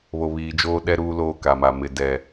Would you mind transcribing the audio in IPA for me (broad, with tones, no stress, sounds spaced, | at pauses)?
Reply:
β o˨ β iː˨ d͡ʒ oː˦ ɗ ɛ˦ ɾ uː˦ l oː˦˨ k a˨ m a˨ m ɪ˨ d ɛ˨